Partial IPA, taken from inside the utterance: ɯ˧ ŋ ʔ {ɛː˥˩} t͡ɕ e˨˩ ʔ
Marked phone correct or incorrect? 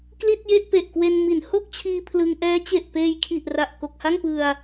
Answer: incorrect